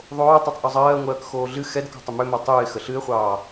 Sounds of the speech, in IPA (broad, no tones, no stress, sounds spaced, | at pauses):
ðˤ oː tˤ o tˤ ʔ o zˤ ɜː ŋʷ ɜː k x oː ɮ ɨ x ɛ d k ɔ̤ tˤ ʏ m ʏ m o tˤ ɨː ɪ̯ x ə ɬ ɨ ɪ̯ χʷ ɑː